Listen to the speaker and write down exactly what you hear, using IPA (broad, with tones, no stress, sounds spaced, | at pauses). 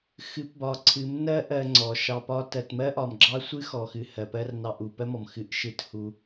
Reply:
x ɨ˨˦ p b ɒ˨ ǀʰ ɨ˨˦ m n ɜ˦ ʔ ɜ˧ ŋ͡ǀ ɔ˨ ʃ ɑ˨ p ɒ˧ t ɜ˨ t m ɜ˦ ʔ ɒ˨ m ɡ͡ǁ ɑ˦ sʷ ɨ˦ x ɔ˨ x ɨ˨ h ɜ˨ p ɜ˦ r n ɑ˧ ʔ u˨ p ɜ˦ m ɔ˨ m x ɨ˧ ʔ ʃ ɨ˦ t h u˦